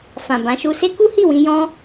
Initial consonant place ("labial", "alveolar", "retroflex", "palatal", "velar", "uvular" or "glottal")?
labial